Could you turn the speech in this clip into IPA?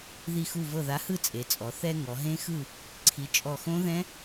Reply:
ð i˧˩ x u˧˩ v ɤ˧˩ ð a˩˥ h ɯ˥˨ t͡sʼ e˩˧ t͡sʼ ɔ˩˧ θ ɛ˧ ŋ ɔ˩˧ ɦ ẽ˦˥ x ɯ˥˨ | ǀʰ i˩˧ t͡ʃʼ ɔ˧˩ x õ˦˥ ð ɛ̃˦˥

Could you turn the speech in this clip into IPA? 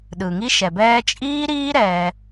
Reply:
ɗ ɯ˨ ŋ i˦ ʃ ɛ˨ b ɛː˦ t͡ʃʼ iː˦ ɾ iː˦ ɾ ɛ˧

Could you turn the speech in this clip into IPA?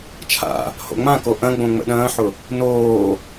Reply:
t͡ʃʰ a̰ | h o̰ ŋ͡m ã k o ʔ ɐ̃ ɡ͡b õ ŋ͡m ə̰ ɗ ɐ̃ː ħ ʊ | n oː

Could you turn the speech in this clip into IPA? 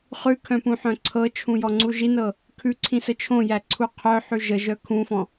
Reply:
χ ʉ kʰ œ̃ p ũ ħ œ̃ ǀʰ ɤ t͡ʃʰ ũ j ɔ ŋ͡ǀ u ʒ i n ɤ | kʰ ʉ ǀʰ ĩ s ə t͡ʃʰ õ j æ ǀʰ u qʰ œ ħ ʉ ʒ ə ʒ œ kʰ ũ f ɔ̃

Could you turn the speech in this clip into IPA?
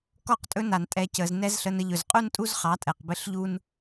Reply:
k ɔ˦ q tʼ ɵ˦ n a˨ n tʼ ɛ˨ c ə˨ z n ɛ˦ z ɬ ə˧ n ə˧ ʎ ɵ˨ z qʼ u˦ n tʼ u˦ z χ ɑ˨˦ tʼ ɛ˨ q b ɘ˦ ɬ ʎ u˦ n

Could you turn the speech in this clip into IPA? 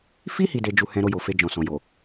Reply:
f i˦ h i˧ d e˧ d͡ʒ u˧ h ɛ̃˧ ɾ o˧ j o˨ f e˧ d͡ʒ ɔ̃˨ s ɔ̃˨ j o˨

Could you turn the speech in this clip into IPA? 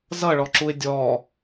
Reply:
z ʌ ɭ ɔ ǁ u ɪ̯ dʲ ɔ

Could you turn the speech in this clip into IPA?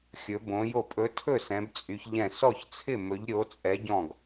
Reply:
xʲ ɵ˨˥ b õ˨˥ j o˥˩ pʼ ɵ˨˥ tʰ ɵ˥˩ s ɛ̃˨˥ b t͡sʼ y˨˥ ç ʎ ɛ̃˥˩ s ɔ˥˩ ç t͡sʰ ɪ˥˩ m ɵ˨˥ ʎ ɾʲ o˨˥ t͡sʼ ɛ˨˥ ɟ ɔ̃˥˩ ɡ

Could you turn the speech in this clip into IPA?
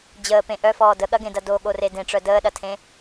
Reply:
d͡ʑ əː p ẽ ʔ œ f ɔː d ə ɠ ɐ ɡ ẽ d ɐ d o ɠ o r e d ẽ ʈ͡ʂ œ d əː ɗ ɐ tʰ ẽ

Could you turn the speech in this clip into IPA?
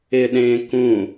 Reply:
ɪ ɗ ẽː k ũ

